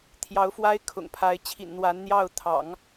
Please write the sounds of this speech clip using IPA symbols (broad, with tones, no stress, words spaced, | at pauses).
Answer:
t̪ʰjɑ˧˥ʊ̯fwa˥ɪ̯kʰʊ̰˨˩ŋpʰa˧˥ɪ̯ t͡ɕʰḭ˨˩nn̪wa˧˥nn̪jɑ˥˩ʊ̯ t̪ʰɑ̰˨˩˦ŋ